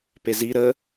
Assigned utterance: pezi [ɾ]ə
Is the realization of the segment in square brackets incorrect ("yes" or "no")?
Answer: no